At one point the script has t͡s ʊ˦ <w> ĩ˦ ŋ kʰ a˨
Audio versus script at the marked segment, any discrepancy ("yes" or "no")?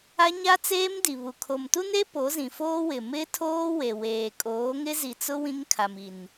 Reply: no